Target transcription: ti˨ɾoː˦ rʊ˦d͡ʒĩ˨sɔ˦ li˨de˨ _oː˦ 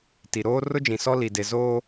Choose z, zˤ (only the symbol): z